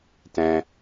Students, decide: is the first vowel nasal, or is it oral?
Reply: nasal